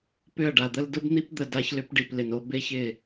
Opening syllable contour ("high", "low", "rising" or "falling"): falling